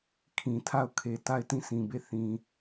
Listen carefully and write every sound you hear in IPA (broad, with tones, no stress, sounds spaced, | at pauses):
kʰ ĩ˨ tʰ a˦˨ ʊ̯ kʰ e˨ t a˦˨ ɪ̯ t ĩ˦˨ s ĩ˨ b e˦˨ θ ĩ˨